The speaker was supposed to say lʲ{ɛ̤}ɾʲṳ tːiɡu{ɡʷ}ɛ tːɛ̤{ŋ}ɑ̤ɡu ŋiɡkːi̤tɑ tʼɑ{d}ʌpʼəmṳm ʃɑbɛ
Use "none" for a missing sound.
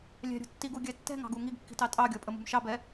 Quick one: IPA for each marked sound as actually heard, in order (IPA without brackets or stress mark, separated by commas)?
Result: ɛ̤, ɡʲ, ŋ, ɡʲ